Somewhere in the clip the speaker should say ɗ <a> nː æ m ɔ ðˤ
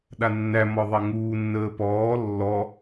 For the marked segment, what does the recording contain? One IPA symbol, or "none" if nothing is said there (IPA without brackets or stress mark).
a